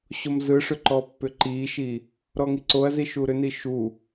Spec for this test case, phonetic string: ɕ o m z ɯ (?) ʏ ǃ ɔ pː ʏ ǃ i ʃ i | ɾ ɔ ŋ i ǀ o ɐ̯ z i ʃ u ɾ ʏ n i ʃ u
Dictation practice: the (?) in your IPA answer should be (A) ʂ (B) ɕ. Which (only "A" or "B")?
A